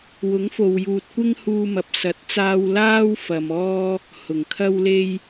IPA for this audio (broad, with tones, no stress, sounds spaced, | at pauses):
w ʊ˨˥ ŋ f o˨ w j uː˨ t̚ kʷ ɪ˥ ŋ h uː˧ m ɐ˨ p̚ s ɐ˨˥ t̚ t͡s aː˥ w l aː˥ w f ɐ˨ m ɔː˥ | h ʊ˨˩ ŋ kʰ ɐ˥ w l e˥ j